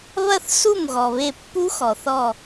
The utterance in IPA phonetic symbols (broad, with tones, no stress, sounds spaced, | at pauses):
β ɐ˥˧ θ s u˥˩ m ɣ ɔ˩ β e˧˩ pː u˦˥ x ɔ˩ θ ɔ˧˩